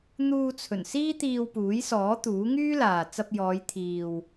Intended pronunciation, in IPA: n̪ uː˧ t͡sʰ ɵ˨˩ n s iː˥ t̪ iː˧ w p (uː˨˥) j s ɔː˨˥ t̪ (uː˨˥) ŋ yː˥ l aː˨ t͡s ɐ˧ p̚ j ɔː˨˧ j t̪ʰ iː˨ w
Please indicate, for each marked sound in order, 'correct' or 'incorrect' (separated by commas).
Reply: correct, correct